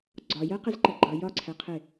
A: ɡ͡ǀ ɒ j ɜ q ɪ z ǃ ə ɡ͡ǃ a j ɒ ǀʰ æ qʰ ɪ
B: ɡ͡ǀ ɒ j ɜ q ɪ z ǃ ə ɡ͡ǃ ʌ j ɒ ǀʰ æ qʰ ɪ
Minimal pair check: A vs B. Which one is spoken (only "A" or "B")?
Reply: B